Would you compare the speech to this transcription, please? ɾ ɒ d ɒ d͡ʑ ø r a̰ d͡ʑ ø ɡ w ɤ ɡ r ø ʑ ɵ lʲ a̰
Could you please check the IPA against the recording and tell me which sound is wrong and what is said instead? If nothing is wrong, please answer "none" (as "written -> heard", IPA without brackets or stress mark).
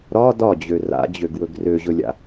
ɤ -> ɵ